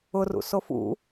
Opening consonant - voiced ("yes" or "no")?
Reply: yes